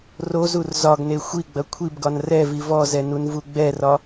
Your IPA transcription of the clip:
r o z u r z ɒ ɡ n e xʷ i ɡ͡b ɐ kʷʰ i b ɡ ɒ n r ɛ v i v ɔ z ɛ n u n v u ɡ͡b ɛ r ɒ

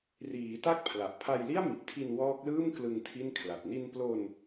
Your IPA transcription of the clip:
r iː˩˦ t a˦˥ k̚ pʰ l a˨˩ ʔ pʰ a˧ j l i˥˩ a̯ m i˨˩ ʔ tʰ i˧ n w ɔː˦˥ k̚ l ɯː˥˩ m k l ɯ˧ ŋ tʰ i˥˩ n kʰ l a˨˩ t̚ n i˧ n p l o˧ n

